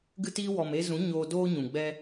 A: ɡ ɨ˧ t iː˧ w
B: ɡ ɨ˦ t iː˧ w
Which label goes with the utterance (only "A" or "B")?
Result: A